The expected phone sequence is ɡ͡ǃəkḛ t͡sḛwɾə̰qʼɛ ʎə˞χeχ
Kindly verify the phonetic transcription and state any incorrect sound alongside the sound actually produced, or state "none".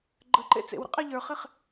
k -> ǃ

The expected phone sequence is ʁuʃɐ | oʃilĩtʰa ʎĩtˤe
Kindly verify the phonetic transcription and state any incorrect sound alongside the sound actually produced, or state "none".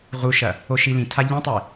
none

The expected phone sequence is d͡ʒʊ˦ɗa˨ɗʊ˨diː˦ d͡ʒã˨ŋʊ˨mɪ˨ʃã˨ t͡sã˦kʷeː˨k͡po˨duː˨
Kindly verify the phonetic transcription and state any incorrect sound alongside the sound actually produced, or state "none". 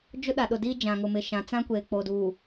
none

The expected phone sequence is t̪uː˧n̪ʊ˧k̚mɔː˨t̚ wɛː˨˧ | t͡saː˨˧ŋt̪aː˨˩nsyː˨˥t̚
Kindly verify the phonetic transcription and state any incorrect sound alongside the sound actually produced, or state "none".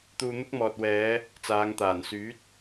ʊ˧ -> ʊ˥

